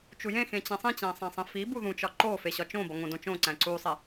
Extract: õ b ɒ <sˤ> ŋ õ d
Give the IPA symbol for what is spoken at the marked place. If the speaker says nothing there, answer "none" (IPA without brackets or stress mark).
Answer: none